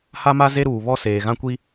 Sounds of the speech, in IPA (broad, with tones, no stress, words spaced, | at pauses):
ha˦ma˦ ze˦ɾuː˨βɔ˦ seː˨ɣã˦kʷi˦